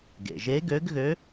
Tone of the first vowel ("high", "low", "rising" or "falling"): low